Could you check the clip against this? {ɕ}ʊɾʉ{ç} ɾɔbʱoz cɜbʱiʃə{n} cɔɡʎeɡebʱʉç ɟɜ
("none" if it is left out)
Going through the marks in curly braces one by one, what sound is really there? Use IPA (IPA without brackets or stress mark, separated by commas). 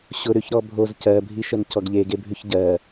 ɕ, ç, n